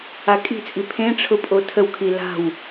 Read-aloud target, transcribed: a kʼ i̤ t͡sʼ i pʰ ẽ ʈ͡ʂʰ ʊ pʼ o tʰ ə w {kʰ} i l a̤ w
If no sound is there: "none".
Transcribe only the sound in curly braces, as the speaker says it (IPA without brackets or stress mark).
kʰ